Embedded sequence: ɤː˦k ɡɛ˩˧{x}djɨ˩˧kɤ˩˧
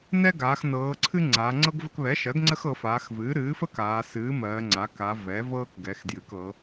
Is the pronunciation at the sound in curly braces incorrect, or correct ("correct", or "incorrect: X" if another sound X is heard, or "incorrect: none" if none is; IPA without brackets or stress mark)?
correct